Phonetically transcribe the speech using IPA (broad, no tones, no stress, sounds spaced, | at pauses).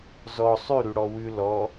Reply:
z ɔ sˤ ʉ ɾ ʉ ɽ ɔ w ʉ l ɔ